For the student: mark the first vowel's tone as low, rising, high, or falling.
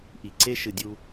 low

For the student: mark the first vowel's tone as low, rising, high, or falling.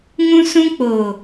high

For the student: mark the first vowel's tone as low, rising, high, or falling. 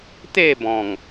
falling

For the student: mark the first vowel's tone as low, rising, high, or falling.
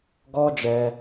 high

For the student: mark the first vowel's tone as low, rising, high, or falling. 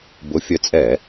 rising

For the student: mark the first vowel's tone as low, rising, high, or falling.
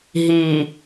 low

